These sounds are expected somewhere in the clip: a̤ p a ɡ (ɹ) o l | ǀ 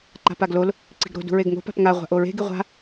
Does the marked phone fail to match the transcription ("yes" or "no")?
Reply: yes